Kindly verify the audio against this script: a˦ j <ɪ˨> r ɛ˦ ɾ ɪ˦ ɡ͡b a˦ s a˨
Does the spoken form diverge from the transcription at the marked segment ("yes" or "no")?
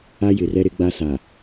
no